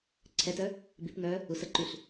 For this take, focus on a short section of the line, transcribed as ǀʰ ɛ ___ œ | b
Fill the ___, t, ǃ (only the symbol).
t